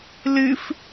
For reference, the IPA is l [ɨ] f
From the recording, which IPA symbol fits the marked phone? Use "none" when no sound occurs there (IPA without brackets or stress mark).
ɨ